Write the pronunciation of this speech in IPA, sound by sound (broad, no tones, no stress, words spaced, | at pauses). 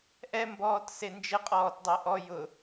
ʔɛmbɔːt send͡ʒɪqʼɔːt dˤeʔɔ jʊ